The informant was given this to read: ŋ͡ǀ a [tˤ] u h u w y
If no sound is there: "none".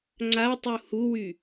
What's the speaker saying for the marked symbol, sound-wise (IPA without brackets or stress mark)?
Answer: tˤ